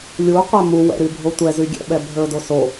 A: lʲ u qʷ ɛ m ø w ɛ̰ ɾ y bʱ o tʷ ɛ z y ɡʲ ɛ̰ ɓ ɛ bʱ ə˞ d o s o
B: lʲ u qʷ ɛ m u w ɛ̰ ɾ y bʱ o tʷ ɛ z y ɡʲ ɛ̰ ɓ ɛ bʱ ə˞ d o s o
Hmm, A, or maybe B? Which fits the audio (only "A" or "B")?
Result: B